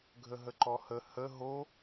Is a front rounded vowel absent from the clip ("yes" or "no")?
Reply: yes